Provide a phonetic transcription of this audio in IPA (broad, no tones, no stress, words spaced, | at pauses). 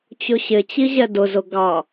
t͡ɕʊɕɪt͡ɕi ʑɛdʊzʊ ɡɑ